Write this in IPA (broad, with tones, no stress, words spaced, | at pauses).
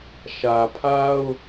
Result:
ʃä˨pʰa˦ʊ̯